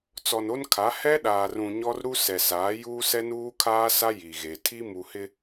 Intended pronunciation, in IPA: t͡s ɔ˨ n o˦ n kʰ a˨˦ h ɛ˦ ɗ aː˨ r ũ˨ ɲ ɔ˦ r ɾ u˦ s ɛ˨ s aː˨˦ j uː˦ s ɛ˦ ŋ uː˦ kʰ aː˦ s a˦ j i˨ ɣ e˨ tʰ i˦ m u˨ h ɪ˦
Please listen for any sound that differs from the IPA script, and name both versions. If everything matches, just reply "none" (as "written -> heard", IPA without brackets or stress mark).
ŋ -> n